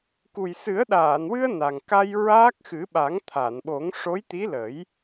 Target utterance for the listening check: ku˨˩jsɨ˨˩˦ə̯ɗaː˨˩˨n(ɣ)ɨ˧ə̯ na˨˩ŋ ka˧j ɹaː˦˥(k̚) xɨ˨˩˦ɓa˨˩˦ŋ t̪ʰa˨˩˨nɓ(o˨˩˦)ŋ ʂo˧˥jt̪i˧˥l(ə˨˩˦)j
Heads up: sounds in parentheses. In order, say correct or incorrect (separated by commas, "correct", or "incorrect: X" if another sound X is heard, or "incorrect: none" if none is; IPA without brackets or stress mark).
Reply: incorrect: w, correct, correct, correct